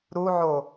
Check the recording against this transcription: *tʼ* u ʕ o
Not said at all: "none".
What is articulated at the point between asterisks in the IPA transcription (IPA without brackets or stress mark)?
ɾ